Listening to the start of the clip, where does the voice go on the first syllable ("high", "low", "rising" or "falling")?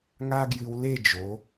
high